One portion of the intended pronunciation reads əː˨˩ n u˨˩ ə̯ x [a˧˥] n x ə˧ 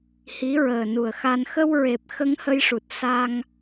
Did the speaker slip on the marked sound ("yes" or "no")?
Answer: yes